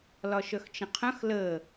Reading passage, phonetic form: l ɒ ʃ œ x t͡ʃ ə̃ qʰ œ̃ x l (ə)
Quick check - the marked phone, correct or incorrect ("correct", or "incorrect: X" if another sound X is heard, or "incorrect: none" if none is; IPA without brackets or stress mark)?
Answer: correct